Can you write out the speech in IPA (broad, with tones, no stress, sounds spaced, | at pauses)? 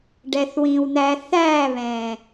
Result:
ɖ ɛ˨ θ w ĩː˨ w n̪ æː˧ θ æː˦˨ β ɛ̃ː˨